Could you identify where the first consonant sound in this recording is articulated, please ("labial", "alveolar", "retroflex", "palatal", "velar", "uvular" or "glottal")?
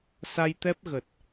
alveolar